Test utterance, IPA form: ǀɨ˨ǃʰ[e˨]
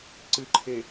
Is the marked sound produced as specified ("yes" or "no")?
yes